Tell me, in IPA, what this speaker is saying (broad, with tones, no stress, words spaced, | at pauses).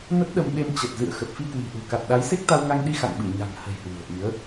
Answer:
nə˦˥t̚ɗə˧mɓe˧m t͡ɕə˨˩t̚zɨ̰˧˨ə̯ xə˨˩p̚fi˧kwi̤˨˩ʔṳ˨˩ ka˨˩t̚ɗa˨˦j se˦˥k̚t̪a˧wŋa˧ŋɗi˧ xa̰˧˨ŋɓɨ˧˩ ɲa̤˨˩ŋhə̤˨˩j hwṳ˨˩ə̯ʔi˨˦ə̯